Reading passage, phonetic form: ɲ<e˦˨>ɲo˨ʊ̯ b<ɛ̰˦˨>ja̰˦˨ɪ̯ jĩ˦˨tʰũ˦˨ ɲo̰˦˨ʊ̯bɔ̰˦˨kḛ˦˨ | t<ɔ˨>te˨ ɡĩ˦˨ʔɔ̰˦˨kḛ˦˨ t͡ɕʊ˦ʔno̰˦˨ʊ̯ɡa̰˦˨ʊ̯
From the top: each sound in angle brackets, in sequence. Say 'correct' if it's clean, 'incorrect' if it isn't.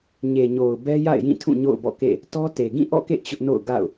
incorrect: e˨, incorrect: ɛ˦, incorrect: ɔ˦

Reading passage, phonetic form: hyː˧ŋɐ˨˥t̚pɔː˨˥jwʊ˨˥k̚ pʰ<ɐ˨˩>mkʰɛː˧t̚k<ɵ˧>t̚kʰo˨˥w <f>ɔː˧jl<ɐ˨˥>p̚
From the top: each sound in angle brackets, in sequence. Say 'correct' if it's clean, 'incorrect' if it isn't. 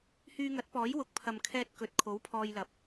incorrect: ɐ˨, incorrect: ɵ˨, incorrect: pʰ, correct

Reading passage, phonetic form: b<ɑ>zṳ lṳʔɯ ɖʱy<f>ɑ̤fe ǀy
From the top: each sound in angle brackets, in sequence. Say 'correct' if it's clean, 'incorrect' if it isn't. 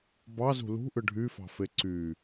correct, correct

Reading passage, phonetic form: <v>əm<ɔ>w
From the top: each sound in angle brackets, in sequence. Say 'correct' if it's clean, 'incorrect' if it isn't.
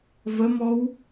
correct, correct

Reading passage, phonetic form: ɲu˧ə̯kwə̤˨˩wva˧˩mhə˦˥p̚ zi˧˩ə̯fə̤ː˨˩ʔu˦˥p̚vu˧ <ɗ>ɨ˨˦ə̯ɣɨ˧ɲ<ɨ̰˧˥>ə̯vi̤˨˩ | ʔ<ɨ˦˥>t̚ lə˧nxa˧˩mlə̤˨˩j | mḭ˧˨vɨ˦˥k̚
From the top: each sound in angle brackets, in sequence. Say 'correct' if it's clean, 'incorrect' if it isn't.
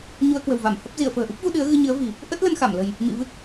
correct, incorrect: ɨ˨˦, incorrect: ə˦˥

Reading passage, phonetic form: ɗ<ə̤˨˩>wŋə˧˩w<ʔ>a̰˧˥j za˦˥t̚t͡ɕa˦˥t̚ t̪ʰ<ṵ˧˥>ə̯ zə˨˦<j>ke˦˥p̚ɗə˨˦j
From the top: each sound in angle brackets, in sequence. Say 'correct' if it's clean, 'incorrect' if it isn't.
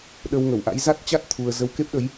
incorrect: ə˧, correct, incorrect: u˧, incorrect: w

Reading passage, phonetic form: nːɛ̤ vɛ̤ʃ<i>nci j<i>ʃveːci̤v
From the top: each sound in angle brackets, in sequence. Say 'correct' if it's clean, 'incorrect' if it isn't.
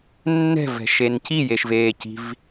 incorrect: e, incorrect: e

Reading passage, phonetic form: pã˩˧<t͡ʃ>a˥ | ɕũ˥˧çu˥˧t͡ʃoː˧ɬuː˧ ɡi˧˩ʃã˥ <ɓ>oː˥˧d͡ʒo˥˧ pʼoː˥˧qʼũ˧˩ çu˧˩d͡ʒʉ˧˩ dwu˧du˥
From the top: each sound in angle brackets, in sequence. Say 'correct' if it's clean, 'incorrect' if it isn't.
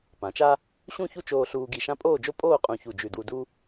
correct, incorrect: pʼ

